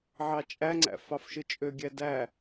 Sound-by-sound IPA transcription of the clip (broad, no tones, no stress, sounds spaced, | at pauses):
ʕ ɑ t͡ʃʼ æ ŋ͡ǀ æ̰ f ɑ f ʃ ɯ t͡ʃʼ ø ɡʲ æ d æ